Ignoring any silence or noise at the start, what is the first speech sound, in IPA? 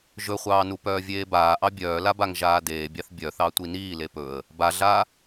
ʒ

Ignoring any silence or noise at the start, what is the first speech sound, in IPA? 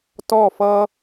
t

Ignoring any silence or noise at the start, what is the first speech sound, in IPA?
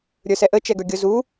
ɾʲ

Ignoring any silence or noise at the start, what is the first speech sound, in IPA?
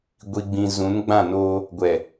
ɡʷ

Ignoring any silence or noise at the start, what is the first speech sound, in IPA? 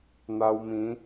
n̪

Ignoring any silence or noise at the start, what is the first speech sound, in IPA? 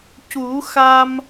c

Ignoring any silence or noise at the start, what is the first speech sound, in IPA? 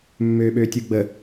mː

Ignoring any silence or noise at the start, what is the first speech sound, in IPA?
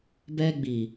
b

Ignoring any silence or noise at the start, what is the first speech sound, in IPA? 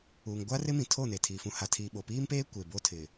uː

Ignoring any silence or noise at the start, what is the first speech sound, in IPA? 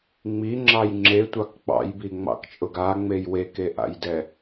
ŋ͡m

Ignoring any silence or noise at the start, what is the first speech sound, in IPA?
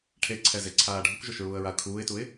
ʈʰ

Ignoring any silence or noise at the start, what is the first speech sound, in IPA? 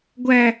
ɡʷ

